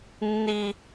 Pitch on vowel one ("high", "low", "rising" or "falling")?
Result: high